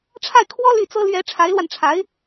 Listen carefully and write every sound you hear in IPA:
ʈ͡ʂʰa˥˩ɪ̯kʰwɔ˥ ly˥˩t͡sɤ˥ lɥɛ˧˥ ʈ͡ʂʰa˧˥ɪ̯lwa˧nʈ͡ʂʰa˧˥ɪ̯

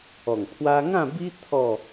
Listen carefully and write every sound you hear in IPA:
ɔ˨˩ŋpʰwa˦ ŋã˥˧bi˦ t̪ʰɔ˥˧

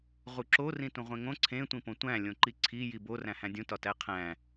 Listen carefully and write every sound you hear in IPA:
ʁuǁo rĩtũʁʷẽŋõ ǀʰẽ tʷĩpõtʷæ̃ lʲõǃiǀʰi jibo ræ̃hæ̃dʲũ tɒtæqʰæ̃

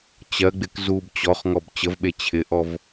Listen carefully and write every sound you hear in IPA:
t͡ɕɜɡ͡bɪk zub t͡ɕɔχŋɔb t͡ɕəvɓe t͡ɕʰɪʔɔv

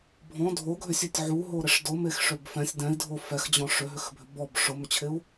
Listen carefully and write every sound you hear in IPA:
bʱɔ̃ dʱoɡʱʏsʲøtʲ ʕuɦoɾɪʂ dʊmexʂøb fɛ̃sʲ dɛ̃i̯dʱo fɛxd͡ʑɔ̃ ʂʏɦʏxbʱʏ bɔb ʂʊmʏt͡ɕʰɪu̯

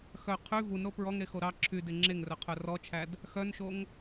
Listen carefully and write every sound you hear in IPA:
xœ qʰy vunɾo pɹɔŋɾexo ɾɑ ǁʰyde ŋ͡ǁeŋrœqʰœ rɔt͡ʃʰæd | xœnʃoŋ

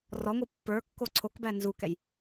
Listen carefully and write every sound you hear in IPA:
rɔŋʷɨ pːə˞kːo ǀʰokbæ nzukɛj

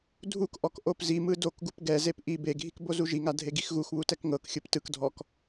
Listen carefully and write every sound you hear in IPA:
dʱukʔɔk ʔopzimɯ dokɡup ɡɛzep ʔi beɡʱik bozuʒiŋa dʱeɡixɣuxβu tɛkŋɤkxʲɯp tɯkdʱɔk

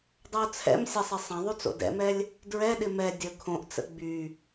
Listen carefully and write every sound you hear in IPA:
dˤɐʊ̯t͡sʰɛ̰msʲɐsˤɪ sˤɐ̃ðˤyt͡so̰ dɛ̰mɛlʲ | dɹɛɗɪ mɛ dʲə kʰõʔt͡sə̰ ɡ͡by

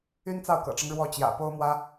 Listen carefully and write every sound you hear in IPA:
y˥nt͡sɑ˥˩ʊ̯kɤ̰˨˩ʈ͡ʂɤ˦ŋ ɻwɔ˥˩t͡ɕjä̰˨˩ po˥ʊ̯mwä˥

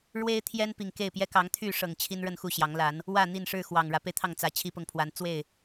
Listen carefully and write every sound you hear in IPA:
ɻwe˦ɪ̯t̪ʰjɛ˦n pi˨˩ŋke˥˨ɪ̯pjɛ˦ kɑ˨˦ŋt̪ʰy˥˨ʂɤ˨˩ŋ t͡ɕʰi˦n ɻə˥˨nxu˥˨ɕjɑ˨˦ŋla˨˦n | wä˥˨n̪i˥˨n ʂɻ̩˥˨ xwɑ˨˩ŋ ɻä˨˦pe˧ɪ̯t̪ʰɑ˥˨ŋ t͡sä˨˦ t͡ɕʰi˦pʊ˨ŋ pʰwa˨˦n t͡swe˥˨ɪ̯

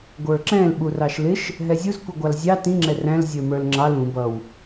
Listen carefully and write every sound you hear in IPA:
ɡʷə˞ǁɛ̃l ɓurɑʃlɪʃ | ɦɛzʲuz kʷiɡʷɑlzʲɑ tĩ ŋ͡ǁɛræ̃l zʲə˞mə˞lŋ͡ǁɑl ũ bʌw

